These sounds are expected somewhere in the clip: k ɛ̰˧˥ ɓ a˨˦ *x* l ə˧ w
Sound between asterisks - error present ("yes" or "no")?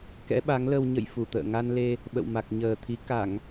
yes